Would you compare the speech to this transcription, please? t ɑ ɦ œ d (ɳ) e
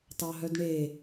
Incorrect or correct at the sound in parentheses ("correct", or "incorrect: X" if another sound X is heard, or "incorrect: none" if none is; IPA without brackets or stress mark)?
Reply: correct